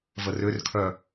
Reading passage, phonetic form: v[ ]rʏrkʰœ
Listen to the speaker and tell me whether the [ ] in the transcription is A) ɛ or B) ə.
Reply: B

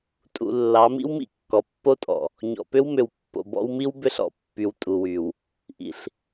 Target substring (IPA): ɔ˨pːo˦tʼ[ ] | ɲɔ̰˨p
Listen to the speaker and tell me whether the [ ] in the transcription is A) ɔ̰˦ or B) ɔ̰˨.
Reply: B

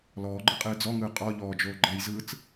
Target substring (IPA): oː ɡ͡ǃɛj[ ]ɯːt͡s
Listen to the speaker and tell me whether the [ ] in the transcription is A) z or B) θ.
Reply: A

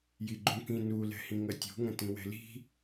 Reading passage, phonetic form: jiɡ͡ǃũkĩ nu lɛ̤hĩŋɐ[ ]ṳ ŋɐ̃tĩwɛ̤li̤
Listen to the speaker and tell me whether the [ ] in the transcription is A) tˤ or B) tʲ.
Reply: B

